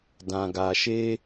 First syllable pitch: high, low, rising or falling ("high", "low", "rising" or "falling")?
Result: low